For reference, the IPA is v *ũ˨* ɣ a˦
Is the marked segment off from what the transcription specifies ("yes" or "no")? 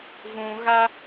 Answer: no